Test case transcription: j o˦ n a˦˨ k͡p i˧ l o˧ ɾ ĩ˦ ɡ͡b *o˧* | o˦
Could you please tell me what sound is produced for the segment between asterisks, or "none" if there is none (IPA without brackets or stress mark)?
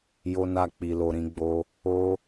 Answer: o˦